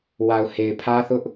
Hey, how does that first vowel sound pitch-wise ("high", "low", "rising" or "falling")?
low